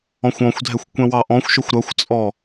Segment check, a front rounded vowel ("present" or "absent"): absent